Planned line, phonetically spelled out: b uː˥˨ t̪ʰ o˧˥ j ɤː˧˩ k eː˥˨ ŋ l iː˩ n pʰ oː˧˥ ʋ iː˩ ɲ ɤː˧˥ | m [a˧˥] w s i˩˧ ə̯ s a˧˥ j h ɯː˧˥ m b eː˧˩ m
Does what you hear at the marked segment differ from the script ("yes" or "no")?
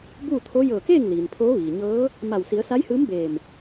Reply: yes